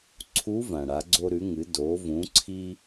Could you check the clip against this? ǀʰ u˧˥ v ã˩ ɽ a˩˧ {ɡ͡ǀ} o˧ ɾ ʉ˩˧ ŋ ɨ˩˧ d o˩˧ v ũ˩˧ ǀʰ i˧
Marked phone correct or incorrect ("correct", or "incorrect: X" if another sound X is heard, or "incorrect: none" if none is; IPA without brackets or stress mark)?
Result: correct